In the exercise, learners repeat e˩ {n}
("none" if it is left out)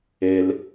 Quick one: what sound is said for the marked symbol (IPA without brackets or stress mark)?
l